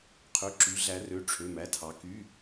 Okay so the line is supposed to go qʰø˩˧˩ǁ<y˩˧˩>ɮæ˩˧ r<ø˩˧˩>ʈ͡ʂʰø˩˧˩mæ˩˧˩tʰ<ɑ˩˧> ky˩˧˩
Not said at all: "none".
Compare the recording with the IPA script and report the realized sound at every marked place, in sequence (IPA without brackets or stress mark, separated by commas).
y˩˧, ø˩˧˩, ɑ˩˧